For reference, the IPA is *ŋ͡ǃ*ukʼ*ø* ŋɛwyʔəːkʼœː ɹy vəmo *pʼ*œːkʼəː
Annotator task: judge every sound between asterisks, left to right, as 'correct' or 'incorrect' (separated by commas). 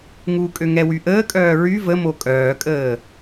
incorrect, correct, incorrect